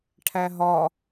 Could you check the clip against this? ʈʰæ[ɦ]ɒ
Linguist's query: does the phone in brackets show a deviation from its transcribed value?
no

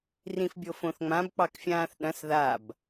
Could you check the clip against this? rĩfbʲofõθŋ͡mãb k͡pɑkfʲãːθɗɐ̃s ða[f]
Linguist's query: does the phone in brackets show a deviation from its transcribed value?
yes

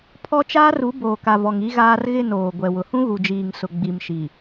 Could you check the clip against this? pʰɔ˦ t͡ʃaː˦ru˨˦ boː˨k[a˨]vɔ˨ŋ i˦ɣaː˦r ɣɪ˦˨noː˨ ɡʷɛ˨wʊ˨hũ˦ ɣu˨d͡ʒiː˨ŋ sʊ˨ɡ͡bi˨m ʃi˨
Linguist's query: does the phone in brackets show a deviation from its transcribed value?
no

